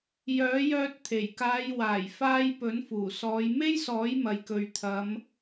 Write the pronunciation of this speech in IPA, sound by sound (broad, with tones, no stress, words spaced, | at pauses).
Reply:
jœː˨˥jœː˧t̚ t̪ʰe˨˩jkaː˨˧j waː˨˩j faː˧j pɵ˨˥nfuː˨˩ sɔː˨˧j me˥jsɔː˨˥j mɐ˨jkɵ˨ɥt̪ʰɐ˨˧m